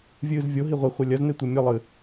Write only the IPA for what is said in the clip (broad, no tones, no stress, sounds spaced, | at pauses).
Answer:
vʲ ɨː z vʲ o ɦ i ʁʷ i χʷ a lʲ ɐ z n e tʷ i mʲ ɐ lˠ ɨ